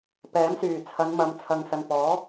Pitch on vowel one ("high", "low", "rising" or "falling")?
rising